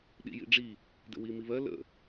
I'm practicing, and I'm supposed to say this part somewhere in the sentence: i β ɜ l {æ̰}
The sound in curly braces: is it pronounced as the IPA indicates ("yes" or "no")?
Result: no